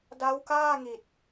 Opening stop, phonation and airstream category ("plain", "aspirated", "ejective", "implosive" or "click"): plain